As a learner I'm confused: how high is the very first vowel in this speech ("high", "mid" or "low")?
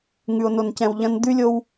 high